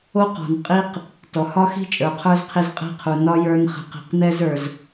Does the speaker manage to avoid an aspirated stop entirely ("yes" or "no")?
no